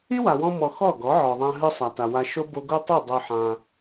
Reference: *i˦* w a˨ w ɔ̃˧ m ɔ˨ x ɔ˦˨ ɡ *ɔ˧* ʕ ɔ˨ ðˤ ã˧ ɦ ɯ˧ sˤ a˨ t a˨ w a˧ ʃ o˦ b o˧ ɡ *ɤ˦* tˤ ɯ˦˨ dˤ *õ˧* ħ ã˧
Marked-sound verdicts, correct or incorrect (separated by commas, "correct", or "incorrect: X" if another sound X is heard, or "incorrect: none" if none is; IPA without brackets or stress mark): correct, incorrect: ɔ˨˦, incorrect: o˦, incorrect: o˧